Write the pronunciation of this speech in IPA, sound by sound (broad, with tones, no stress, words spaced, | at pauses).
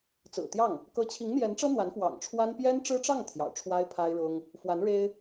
t͡sɹ̩˨˩t̪jɑ˥˩ŋ | kɤ˧˥t͡ɕʰi˧˥ŋn̪jɛ˧˥nʈ͡ʂɤ˥ n̪wa˧˥nfwɑ̰˨˩ŋʈ͡ʂʰwa˥n pjɛ˥nʈ͡ʂɻ̩˥ʈ͡ʂɑ˥˩ŋ t̪ʰjɑ̰˨˩ʊ̯ʈ͡ʂʰwa˥ɪ̯pʰa˥ɪ̯ɻʊ˥ŋ | fwa˧˥nɻe˥ɪ̯